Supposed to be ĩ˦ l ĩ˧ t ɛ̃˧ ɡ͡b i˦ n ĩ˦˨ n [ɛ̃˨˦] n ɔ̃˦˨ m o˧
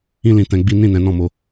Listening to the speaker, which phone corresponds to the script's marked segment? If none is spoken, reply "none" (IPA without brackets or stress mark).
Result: ɛ̃˨˦